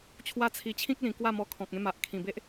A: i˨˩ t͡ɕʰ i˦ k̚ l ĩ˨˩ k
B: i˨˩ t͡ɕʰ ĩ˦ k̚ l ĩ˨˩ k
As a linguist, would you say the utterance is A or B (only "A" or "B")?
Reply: B